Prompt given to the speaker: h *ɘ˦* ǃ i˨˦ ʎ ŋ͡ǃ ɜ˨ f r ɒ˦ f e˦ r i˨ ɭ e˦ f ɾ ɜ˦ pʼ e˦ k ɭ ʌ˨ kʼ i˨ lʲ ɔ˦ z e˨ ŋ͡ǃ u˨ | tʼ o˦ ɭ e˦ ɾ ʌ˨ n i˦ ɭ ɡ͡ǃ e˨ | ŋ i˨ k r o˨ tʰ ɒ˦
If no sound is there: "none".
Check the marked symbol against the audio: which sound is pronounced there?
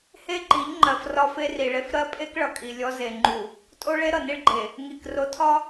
e˦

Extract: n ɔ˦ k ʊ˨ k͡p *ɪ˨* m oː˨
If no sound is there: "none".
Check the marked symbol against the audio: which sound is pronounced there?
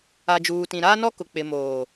ɪ˨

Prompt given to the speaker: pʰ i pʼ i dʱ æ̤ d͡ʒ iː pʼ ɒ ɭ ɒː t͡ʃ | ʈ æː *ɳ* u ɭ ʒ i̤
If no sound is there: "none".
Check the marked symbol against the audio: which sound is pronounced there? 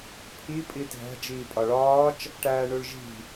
ɳ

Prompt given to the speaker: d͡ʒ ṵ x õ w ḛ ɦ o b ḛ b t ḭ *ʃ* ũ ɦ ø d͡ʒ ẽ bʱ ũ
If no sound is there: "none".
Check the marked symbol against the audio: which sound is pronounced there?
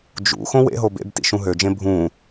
ʃ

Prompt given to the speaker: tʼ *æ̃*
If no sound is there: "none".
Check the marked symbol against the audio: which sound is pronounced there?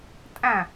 æ̃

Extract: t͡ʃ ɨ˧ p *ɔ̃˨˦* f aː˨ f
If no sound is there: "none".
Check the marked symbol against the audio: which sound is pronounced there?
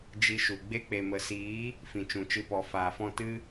ɔ˨˦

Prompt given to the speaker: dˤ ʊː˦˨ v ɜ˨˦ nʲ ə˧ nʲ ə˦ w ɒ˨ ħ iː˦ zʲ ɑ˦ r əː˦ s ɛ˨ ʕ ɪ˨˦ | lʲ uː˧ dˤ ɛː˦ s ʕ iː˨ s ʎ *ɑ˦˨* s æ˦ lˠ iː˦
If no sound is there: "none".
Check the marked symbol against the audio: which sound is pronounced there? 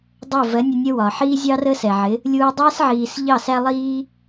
ɑ˦˨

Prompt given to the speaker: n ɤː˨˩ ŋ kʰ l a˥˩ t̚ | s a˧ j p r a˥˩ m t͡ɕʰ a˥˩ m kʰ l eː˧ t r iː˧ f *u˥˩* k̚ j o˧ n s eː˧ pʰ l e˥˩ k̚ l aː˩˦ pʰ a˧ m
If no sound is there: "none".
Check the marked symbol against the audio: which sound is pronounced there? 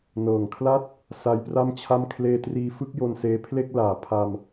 ɯ˥˩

